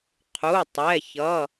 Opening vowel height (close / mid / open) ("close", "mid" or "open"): close